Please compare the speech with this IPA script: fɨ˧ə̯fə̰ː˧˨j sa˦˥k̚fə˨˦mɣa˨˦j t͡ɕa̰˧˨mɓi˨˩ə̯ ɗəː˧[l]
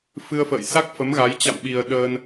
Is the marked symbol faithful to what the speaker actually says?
no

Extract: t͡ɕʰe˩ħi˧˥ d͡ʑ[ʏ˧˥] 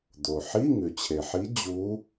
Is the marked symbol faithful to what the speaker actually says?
no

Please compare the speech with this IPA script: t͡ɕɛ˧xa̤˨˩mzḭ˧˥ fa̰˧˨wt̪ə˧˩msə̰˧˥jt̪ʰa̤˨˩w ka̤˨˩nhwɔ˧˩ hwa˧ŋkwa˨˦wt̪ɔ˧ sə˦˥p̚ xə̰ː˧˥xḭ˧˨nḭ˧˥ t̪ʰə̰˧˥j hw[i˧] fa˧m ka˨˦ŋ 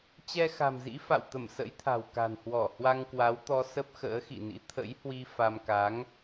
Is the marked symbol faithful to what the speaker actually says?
yes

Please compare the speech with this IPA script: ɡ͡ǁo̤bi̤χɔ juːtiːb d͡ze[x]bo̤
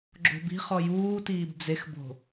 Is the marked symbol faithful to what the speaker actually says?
yes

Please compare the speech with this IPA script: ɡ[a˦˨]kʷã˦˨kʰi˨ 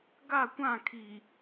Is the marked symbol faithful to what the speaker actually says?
yes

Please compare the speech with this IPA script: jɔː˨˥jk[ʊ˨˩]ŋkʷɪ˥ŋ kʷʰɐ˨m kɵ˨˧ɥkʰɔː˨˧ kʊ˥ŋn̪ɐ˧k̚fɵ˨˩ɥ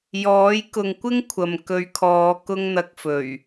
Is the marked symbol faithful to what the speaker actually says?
no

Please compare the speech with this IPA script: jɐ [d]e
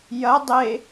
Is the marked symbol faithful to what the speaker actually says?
no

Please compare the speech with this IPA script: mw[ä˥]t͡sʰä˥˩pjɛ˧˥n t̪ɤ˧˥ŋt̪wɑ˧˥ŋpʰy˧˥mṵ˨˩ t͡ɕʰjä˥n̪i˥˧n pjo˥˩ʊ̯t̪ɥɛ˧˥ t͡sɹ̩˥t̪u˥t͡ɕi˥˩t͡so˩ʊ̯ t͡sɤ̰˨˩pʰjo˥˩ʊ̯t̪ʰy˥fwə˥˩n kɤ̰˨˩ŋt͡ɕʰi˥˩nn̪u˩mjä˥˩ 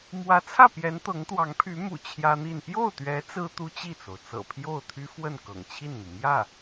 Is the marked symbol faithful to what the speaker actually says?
no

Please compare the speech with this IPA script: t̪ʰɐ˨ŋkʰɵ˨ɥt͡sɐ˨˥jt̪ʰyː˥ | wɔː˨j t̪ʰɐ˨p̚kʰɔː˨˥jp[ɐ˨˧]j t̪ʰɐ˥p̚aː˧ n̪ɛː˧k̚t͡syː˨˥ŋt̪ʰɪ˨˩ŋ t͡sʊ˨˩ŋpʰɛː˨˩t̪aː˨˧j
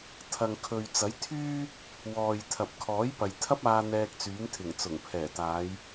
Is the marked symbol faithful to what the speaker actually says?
no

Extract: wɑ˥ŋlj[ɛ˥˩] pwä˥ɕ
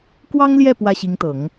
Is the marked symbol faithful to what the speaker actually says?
yes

